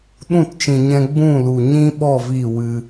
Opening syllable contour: falling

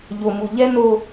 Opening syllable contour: low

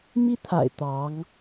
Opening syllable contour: high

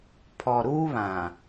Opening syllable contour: low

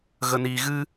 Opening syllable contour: low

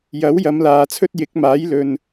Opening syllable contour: rising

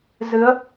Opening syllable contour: rising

